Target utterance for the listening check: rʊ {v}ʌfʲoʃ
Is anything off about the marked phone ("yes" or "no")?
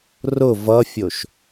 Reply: no